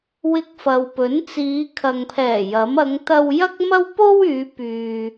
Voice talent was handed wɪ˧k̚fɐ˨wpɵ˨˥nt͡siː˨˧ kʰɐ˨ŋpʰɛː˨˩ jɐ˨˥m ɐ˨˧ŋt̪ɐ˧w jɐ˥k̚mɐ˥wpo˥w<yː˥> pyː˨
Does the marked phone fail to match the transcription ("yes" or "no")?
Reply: yes